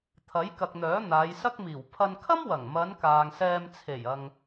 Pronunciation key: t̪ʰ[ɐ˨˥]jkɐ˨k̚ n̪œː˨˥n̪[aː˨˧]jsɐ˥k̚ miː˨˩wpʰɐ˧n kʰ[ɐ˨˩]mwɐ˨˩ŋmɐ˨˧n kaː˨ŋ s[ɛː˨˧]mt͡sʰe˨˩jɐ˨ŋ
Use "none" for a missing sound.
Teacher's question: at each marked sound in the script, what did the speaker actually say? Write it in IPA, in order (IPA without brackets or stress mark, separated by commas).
ɐ˨˥, aː˨˧, ɐ˥, ɛː˧